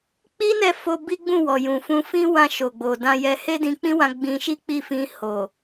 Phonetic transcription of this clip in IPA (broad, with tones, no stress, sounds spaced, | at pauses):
k͡p i˦ n ɛ˦˨ f o˧ b i˦ ɡ͡b ũ˦˨ w ɔ˨ j ũ˨ f ũ˧ f ĩ˦ w ã˧ ʃ o˨ ɡ͡b o˨ d ã˧ j ɛ˧ h e˦ d ĩ˧ k͡p ĩ˦ w ã˧ ɡ͡b ĩ˧ ʃ i˦ k͡p i˦˨ f ĩ˧ h o˨